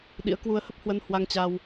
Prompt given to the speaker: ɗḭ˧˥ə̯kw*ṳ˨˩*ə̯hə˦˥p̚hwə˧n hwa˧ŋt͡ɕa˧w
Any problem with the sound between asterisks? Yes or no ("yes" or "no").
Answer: yes